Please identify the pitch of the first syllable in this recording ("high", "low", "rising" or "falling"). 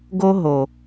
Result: high